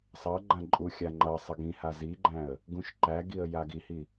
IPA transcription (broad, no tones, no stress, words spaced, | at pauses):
sˤʌɡ͡ǃã ǃʼuxʲa ŋ͡ǃʌ sˤʌɡĩha ziɡ͡ǃæ̃ə̯ | ɡũʃǃæɡiə̯ jaɡihi